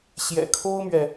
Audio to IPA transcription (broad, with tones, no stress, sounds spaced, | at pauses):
ɕ j ɛ̰˨˩ kʰ o˥ ʊ̯ m ɥ ɛ˨